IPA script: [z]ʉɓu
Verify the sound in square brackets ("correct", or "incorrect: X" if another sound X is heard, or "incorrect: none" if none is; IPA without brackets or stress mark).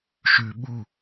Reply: incorrect: ʃ